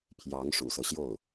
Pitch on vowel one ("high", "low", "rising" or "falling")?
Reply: rising